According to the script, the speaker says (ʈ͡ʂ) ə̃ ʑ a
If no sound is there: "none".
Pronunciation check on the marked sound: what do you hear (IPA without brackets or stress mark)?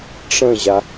ʈ͡ʂ